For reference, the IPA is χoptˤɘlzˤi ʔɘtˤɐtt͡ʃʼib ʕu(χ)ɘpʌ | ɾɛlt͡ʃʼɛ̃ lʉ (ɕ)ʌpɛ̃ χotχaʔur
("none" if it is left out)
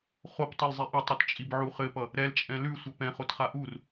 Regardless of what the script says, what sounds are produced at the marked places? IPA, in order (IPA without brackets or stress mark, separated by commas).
χ, sʷ